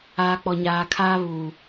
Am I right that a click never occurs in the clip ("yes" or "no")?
yes